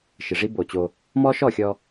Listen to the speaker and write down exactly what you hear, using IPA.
ʃ ɪ˨ ʐ i˦ b o˨ t͡ɕ o˦ | m ɔ˦ ʃ ɔ˦˨ xʲ ɔ˦

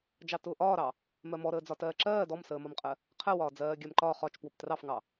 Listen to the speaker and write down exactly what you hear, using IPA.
d͡ʒ ɑ t ʊː ʔ ɒː ɾ ɑ | m ɜ m ɔ ɾ əː d͡z ɒ t ɜː ǁ ɜː d ɔ m s əː m ɒ m qʼ ɜ | qʰ ɜ w ɒː d͡z ɜː ɡʲ ɜ m ǃ ɒ χ ɒ t͡ʃ p w ʊ p t r ɑ f ŋ ɑ

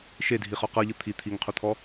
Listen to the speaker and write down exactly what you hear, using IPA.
ʃ e dʱ i χ ɔ q ɤ ʎ ɯ t̪ʰ i t̪ʰ i ŋ qʰ u t̪ʰ ɔ

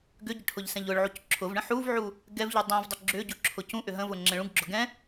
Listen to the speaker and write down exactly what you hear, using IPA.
ɡ ʏ ɟ ʏ ʈʰ ʊ ʎ s ɛ̃ ʎ ʊ ɭ ʕ u c ǁʰ ʊ v ɳ ə̃ ħ u v ʕ u | ɡ ɛ v ʎ u dˤ ũ v dˤ ʏ ɡ͡ǁ ʏ ɟ u ǁʰ ʊ c ũ ʔ ʏ ɦ ə̃ v ʊ ŋ͡ǁ ɛ̃ ɭ ũ ɡ ɡ͡ǁ ʊ ɡ ɛ̃

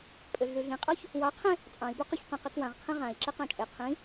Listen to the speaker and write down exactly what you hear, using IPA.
pʼ ø ɮ ʉ ɮ ĩ qʼ ɔ ç | w ɑ qʰ ẽ | t͡sʼ ɑ̃ i̯ b ʉ q u ç q ɔ̃ q i k w ã ʁ qʰ ĩ ʁ ã i̯ ǁ e q ɑ̃ t͡ʃʼ e qʰ ĩ

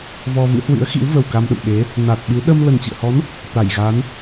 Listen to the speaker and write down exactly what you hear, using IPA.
v ɔ˧ v ɨ̰˧˥ h w ɨ̰˧˥ ə̯ x ḭ˧˥ w v ə˨˩ w k a˧ m ɗ ə̰˧˨ m ɓ e˨˦ | n a˨˩ t̚ ɓ ɨ˨˦ ɗ ə˧ m l ə˨˩ n t͡ɕ ɨ̰˧˨ ə̯ h ɔ˨˦ n | t̪ a˧˩ j ɣ a˨˦ n

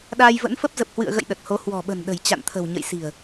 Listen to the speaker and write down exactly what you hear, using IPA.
ɗ aː˧ j v ə̰˧˥ n f ə˦˥ p̚ z ə˨˩ p̚ h w ɨ̰˧˨ ə̯ ɣ ə̰˧˨ j ɗ ə˨˩ t̚ h o˨˦ h w ɔ̤˨˩ ɓ ə̤˨˩ n ɗ ə̤˨˩ j t͡ɕ a̰˧˨ n t̪ʰ ə̤˨˩ w ɲ ə̰˧˨ j s i̤˨˩ ə̯

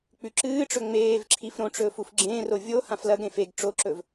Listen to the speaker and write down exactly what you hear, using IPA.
k͡p ʉ ǁ ɨː ʈ͡ʂ ɵ ŋ͡m eː v ǁʰ i f ɾ õ ʈ͡ʂ ɵː f u f ɡ͡ǁ ẽː r o vʲ o h ã f l ɐ ɡ ɾ ẽ f e ɡ ʈ͡ʂ o ǁ ɵ v

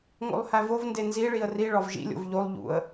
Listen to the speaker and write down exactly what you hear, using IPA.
ŋ o̰ lˠ h æ v o v n d e n z i ɭ i ə̯ r i ɭ ɒ v ʒ ḭ lʲ o̰ v ʎ o lˠ ʎ ṵ ə̯

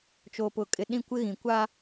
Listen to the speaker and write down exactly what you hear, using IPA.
t͡ʃ oː˨ p ʊ˨ kʼ ɪ˨ ɗ ĩ˦˨ kʷ ɪ˦ ɣ ĩ˨ kʷ a˦

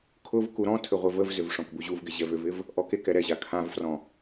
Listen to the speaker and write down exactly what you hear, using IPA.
kʰ ʊ v k u ɾ ɔ̃ tʰ ʏ ʁʷ e v ə v z ʏ v ʂ ɔ̃ k b u ʑ u v ɡ ɪ ʑ ɛ v ʏ v ɪ v | ʔ ɔ k e k ɛ ɾ ɛ ʑ a kʰ ã v f r ɔ̃

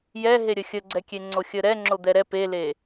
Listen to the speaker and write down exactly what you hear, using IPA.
j ɛ ɦ e ɾʲ ə xʲ ə ɡ͡ǀ ɛ kʲ e ŋ͡ǀ o xʲ ə ɾ ɛ ŋ͡ǁ o d̪ ɛ ɾ ɛ p e l e

